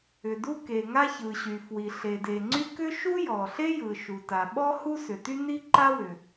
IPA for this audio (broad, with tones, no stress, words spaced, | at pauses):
ʏ˩du˥ke˩ŋa˥ çɯ˩ɕy˩fwi˩ ɬe˩de˩ŋ͡ǀy˥ kʏ˥ʃu˥jɔ˩ɬe˥ jɯ˩ ʃu˩ta˩ɓɔ˥ hu˥sʏ˩ty˥ ni˥ǃa˥wʏ˩